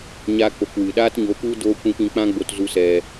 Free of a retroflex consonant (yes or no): yes